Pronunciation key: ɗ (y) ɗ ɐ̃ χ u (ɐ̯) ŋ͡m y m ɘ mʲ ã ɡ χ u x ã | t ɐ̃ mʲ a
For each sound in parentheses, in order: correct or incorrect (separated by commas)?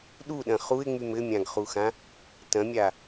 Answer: incorrect, incorrect